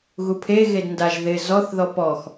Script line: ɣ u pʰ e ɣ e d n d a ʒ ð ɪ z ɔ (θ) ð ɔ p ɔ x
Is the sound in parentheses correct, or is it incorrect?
correct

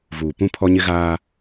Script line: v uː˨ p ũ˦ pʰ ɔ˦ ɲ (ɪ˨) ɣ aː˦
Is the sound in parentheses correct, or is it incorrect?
incorrect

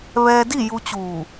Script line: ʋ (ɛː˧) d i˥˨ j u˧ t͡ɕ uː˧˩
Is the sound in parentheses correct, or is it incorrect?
correct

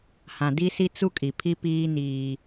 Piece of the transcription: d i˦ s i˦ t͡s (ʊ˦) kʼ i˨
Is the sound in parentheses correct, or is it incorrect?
incorrect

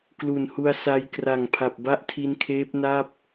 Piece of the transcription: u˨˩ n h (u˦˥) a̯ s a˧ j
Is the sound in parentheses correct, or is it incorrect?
incorrect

